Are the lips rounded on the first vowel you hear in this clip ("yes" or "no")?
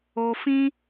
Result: yes